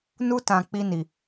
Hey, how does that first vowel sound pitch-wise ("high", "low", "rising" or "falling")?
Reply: high